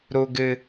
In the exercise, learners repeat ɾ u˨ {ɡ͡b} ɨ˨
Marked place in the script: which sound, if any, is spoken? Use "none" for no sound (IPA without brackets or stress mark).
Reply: ɡ